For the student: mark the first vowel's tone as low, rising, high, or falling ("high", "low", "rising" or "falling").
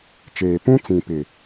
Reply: low